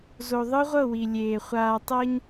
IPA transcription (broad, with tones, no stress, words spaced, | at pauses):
zo˨ðˤɯ˦ʁʷɤ˦˨ wi˨lʲeː˨ χʷaː˨tˤɤ˦ɲ